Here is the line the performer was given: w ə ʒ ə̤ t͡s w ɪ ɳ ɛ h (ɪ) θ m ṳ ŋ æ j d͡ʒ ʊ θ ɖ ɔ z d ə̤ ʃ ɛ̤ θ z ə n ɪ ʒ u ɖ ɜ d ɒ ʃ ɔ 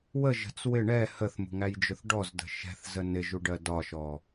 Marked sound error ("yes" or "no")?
yes